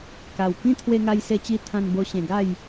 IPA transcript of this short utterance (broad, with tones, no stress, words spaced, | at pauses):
ka˨˩wkĩ˦ t̪ʰwe˧ŋa˧jse˧t͡ɕi˧ t̪ʰã˧nbo˧ ɕẽ˧ɡa˥˧j